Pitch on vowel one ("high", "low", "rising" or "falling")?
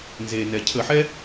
low